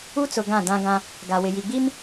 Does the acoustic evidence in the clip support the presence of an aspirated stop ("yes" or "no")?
no